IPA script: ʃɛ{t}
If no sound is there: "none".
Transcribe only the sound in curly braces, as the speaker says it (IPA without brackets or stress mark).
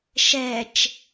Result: t͡ʃ